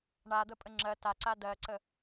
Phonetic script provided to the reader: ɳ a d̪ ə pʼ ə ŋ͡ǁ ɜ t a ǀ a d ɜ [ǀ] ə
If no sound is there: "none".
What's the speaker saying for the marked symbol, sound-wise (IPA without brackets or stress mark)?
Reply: ǀ